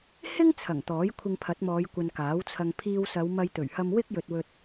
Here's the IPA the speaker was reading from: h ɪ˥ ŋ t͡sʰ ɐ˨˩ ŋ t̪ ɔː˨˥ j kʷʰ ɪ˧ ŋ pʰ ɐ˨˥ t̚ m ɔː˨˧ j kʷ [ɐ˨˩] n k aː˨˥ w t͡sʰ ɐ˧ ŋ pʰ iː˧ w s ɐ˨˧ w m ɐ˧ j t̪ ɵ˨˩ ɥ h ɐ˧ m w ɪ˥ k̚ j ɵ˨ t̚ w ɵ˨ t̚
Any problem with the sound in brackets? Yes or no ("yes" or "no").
yes